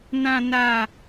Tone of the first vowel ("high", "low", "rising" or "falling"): low